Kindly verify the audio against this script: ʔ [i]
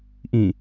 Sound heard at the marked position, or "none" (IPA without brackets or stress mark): ĩ